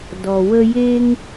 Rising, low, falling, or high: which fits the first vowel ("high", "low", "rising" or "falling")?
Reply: low